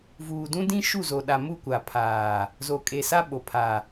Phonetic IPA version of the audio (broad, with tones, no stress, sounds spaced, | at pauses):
v uː˨ d ũ˦ d ĩ˦ ʃ u˦˨ z o˨ ɗ a˨ m u˦˨ kʷ a˨ pʰ aː˨ | z o˨ kʼ e˨ s a˦ ɓ o˨ pʰ a˨